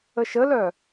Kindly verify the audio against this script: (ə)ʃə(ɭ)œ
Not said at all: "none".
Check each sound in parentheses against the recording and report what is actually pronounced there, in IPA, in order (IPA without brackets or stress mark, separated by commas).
ə, l